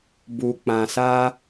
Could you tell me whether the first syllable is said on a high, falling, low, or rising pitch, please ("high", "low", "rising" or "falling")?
low